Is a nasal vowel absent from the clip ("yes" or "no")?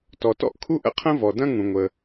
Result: no